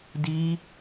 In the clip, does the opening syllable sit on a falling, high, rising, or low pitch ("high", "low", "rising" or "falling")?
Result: high